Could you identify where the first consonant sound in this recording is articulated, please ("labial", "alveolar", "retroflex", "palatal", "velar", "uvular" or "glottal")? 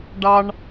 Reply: retroflex